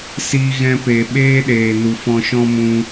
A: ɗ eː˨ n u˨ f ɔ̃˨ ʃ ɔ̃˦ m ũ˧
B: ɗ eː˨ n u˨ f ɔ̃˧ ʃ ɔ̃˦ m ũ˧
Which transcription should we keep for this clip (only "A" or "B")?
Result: B